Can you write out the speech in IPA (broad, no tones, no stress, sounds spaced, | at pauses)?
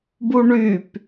b u ɳ y p